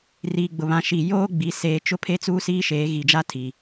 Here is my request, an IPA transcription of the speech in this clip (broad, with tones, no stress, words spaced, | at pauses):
riː˨ɡ͡bʊ˨βã˨ ʃi˨ joː˦ɡ͡bi˨ seː˨t͡ʃʊ˦pʰe˦ t͡suː˦siː˦ʃeː˨˦ ɣi˨d͡ʒa˦tʰi˨